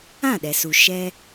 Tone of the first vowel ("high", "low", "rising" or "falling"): falling